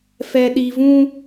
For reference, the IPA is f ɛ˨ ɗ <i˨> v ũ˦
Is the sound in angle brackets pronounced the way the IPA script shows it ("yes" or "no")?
yes